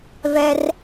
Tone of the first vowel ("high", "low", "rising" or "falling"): high